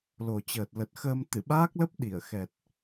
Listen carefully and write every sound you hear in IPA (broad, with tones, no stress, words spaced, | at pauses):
lo˨˩t͡ɕəː˨˩t̚ lə˨˩t̚xəː˧m t̪ɨ˧˩ɓaː˦˥k̚lə˦˥p̚ ɗi˧˩ə̯xɛ˨˩t̚